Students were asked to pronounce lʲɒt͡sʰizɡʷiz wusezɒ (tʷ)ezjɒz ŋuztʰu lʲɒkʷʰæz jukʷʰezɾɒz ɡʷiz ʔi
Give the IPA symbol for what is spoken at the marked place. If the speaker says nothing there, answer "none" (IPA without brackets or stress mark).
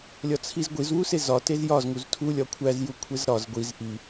t